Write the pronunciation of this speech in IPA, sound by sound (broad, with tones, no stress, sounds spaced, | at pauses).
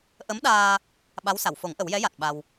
ʔ ə˧˥ m ɗ aː˧ | ɓ a˧˥ w s a˨˩˨ w f o˨˩˦ ŋ ʔ ə˨˩˦ w j ɛ˧˥ j a˨˩ t̚ ɓ a˧ w